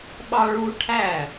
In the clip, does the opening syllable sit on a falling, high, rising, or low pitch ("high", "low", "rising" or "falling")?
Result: high